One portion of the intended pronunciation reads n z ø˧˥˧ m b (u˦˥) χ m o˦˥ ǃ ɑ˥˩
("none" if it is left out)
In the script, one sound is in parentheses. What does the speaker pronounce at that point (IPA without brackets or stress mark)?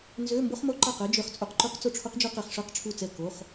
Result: o˦˥